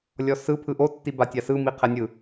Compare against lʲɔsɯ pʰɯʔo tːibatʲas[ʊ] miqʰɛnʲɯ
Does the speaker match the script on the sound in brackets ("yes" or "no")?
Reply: no